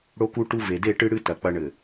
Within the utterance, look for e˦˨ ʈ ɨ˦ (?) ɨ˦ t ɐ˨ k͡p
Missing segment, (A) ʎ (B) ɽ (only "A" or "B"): B